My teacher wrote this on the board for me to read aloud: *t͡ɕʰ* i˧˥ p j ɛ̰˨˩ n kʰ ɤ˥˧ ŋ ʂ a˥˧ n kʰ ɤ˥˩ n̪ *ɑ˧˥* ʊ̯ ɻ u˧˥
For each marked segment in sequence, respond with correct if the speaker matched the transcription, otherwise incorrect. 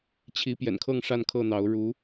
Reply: correct, correct

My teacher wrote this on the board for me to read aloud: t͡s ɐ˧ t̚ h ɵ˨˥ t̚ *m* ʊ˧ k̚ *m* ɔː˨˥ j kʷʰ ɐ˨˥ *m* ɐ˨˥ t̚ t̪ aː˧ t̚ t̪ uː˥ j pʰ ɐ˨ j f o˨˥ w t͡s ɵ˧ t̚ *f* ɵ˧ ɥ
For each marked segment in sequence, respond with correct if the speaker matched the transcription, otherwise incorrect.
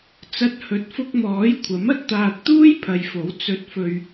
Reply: incorrect, correct, correct, correct

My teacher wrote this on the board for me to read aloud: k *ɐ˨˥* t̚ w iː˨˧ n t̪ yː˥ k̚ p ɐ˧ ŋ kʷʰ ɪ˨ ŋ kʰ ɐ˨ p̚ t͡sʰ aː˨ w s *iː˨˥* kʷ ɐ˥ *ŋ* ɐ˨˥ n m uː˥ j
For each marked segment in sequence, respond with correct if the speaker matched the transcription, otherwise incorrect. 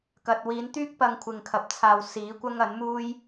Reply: incorrect, correct, correct

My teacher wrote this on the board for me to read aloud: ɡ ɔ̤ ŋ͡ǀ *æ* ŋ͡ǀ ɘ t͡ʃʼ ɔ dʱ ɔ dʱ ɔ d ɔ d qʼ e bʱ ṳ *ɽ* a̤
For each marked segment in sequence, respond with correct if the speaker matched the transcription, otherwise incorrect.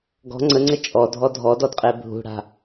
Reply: incorrect, correct

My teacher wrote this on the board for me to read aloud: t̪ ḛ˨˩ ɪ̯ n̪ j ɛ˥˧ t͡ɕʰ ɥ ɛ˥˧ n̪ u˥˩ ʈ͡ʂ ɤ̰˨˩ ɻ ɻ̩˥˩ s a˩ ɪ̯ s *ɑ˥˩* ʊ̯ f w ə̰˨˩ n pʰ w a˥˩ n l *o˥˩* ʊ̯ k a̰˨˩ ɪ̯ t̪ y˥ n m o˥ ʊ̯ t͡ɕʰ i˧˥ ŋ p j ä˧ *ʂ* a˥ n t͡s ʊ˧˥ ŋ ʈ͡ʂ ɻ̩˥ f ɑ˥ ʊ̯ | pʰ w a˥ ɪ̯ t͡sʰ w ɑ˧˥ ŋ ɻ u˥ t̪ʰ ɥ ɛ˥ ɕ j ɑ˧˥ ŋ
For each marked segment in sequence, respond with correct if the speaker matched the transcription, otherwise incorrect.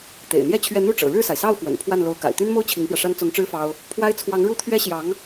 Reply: correct, incorrect, correct

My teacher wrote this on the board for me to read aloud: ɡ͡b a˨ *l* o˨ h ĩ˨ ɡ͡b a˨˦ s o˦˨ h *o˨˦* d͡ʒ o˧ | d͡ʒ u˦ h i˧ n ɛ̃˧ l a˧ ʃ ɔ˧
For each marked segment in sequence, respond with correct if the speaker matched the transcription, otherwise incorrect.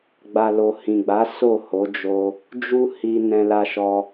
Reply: correct, correct

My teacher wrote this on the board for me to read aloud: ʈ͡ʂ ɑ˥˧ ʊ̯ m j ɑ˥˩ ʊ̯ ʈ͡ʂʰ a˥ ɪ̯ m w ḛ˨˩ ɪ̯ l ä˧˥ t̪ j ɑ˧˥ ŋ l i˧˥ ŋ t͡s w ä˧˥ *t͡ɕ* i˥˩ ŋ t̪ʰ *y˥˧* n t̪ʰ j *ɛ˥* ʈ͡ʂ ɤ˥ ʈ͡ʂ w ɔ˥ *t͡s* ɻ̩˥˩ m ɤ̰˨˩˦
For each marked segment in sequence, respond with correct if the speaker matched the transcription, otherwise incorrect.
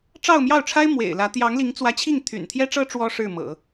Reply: incorrect, incorrect, correct, incorrect

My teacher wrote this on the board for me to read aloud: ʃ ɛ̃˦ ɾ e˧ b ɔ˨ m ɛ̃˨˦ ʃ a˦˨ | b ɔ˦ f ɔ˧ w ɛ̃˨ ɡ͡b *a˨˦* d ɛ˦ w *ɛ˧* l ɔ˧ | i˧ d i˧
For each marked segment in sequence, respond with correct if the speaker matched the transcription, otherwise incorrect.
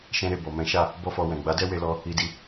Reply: correct, incorrect

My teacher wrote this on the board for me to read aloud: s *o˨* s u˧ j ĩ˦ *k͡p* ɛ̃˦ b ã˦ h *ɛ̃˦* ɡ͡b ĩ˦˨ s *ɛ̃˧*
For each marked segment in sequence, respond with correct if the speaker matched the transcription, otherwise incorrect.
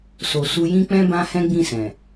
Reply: correct, correct, correct, incorrect

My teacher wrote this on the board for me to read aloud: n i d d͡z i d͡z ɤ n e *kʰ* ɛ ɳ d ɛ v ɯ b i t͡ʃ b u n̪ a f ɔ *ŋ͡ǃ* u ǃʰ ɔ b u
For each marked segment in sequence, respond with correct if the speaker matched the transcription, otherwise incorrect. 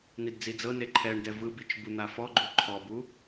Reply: incorrect, incorrect

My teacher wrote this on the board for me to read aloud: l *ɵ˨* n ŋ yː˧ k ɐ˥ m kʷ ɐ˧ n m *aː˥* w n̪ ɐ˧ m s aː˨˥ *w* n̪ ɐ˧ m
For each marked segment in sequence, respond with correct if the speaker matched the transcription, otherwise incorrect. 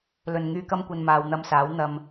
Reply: correct, incorrect, correct

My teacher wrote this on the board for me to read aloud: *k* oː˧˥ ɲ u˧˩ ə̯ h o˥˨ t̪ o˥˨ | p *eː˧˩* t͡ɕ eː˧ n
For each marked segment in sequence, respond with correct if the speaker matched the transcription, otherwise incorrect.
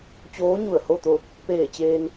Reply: incorrect, correct

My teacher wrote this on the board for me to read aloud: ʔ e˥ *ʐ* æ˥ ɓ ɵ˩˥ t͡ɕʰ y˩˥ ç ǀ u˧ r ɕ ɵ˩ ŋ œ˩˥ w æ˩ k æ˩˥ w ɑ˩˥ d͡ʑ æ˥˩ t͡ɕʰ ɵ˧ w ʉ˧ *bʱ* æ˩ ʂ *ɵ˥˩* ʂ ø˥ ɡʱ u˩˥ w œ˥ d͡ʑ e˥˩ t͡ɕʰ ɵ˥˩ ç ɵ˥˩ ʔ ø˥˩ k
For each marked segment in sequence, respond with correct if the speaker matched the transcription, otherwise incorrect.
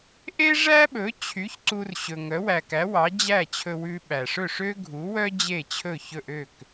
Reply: correct, incorrect, correct

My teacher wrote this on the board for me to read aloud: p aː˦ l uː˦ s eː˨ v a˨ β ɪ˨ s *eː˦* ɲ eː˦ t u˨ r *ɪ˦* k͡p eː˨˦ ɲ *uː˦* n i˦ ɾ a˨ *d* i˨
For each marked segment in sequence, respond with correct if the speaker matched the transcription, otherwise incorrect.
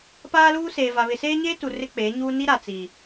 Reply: correct, correct, correct, incorrect

